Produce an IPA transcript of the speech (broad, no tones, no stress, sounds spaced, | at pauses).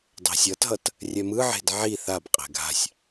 dˤ e̤ sʲ ʌ t ɦ ʌ t | rʲ ɛ m ɯ ʕ e̤ d ʕ i θ a b qʼ ɛ̤ ɡʱ a̤ sʲ